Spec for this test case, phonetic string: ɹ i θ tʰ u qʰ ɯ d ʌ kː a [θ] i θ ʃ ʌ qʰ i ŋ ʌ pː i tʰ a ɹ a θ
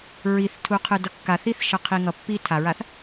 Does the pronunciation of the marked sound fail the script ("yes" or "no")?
no